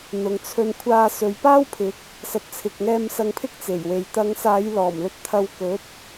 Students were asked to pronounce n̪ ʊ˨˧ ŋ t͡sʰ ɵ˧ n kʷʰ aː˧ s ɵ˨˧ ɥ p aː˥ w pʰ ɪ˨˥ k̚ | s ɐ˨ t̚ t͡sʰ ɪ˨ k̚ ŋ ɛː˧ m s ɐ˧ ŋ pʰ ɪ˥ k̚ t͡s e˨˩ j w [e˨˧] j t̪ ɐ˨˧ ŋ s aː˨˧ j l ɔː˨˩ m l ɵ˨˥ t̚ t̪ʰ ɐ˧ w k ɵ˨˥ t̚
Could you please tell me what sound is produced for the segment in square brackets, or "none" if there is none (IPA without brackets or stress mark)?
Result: e˨